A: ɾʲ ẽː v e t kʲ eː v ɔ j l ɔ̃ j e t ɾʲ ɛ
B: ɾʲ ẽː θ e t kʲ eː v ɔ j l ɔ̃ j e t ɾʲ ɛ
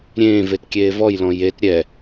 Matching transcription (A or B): A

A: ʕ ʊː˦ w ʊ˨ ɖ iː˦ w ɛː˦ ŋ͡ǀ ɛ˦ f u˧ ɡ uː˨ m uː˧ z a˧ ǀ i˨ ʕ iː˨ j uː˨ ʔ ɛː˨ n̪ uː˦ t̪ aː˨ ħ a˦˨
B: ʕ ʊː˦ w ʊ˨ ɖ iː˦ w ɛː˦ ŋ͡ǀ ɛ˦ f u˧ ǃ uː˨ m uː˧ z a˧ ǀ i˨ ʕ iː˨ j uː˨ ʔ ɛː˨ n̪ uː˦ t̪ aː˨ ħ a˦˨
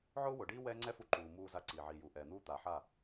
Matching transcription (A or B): B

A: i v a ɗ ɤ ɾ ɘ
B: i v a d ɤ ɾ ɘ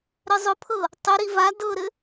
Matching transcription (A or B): B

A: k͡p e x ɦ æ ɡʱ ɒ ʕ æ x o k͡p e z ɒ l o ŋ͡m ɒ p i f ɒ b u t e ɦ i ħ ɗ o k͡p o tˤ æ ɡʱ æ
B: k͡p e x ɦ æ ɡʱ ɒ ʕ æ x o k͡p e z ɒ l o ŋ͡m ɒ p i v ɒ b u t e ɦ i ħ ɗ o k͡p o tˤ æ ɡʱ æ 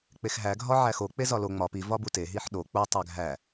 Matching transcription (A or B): B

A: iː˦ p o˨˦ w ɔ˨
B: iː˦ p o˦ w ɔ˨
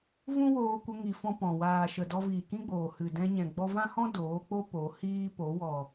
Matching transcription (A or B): A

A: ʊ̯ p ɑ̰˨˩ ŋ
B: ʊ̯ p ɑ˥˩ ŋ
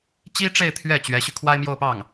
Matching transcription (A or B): B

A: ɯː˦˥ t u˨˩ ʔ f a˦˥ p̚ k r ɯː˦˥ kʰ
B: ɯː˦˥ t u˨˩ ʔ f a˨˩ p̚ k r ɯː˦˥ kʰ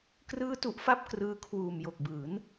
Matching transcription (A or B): A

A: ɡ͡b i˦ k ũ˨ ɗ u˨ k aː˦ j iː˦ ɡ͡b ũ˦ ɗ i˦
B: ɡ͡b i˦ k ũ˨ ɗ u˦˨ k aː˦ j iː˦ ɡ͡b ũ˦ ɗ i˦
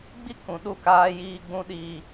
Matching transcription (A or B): B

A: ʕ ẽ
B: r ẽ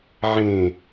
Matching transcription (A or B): A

